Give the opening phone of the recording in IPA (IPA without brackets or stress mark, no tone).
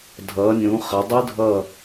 dʱ